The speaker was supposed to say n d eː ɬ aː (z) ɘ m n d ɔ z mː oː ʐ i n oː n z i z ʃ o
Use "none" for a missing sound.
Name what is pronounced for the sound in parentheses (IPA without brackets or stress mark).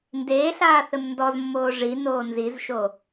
θ